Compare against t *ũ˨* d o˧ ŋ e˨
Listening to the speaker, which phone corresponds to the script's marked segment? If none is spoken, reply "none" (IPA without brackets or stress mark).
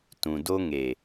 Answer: ũ˨